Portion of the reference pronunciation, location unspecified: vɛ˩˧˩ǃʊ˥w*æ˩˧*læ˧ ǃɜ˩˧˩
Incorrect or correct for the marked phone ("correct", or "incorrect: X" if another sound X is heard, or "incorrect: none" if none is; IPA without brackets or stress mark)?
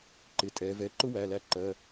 incorrect: æ˩˧˩